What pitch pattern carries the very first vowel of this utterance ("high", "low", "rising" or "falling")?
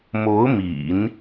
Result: rising